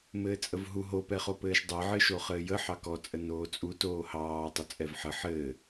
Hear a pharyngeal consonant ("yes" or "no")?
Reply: yes